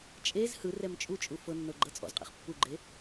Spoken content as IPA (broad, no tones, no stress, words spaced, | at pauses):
t͡ʃʼez hɯrɛm t͡ʃʼut͡ʃʼu fɤnːɤ ɡ͡ǃɤt͡sʼɔ̰zqʼɛ̰χ pːuɡ͡ǃe